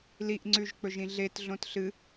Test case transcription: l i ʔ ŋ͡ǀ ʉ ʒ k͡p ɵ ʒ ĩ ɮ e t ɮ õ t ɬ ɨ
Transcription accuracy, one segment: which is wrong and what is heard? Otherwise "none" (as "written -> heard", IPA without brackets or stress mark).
none